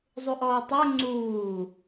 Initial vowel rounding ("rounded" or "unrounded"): rounded